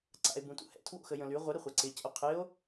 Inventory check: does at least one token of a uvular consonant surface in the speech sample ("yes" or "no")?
yes